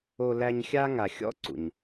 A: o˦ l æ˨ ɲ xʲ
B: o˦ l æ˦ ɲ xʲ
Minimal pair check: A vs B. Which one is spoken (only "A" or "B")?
B